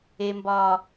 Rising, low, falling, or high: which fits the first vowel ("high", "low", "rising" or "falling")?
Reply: high